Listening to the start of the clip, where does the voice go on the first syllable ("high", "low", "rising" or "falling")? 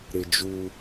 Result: low